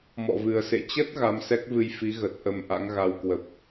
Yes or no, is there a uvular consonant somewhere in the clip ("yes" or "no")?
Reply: no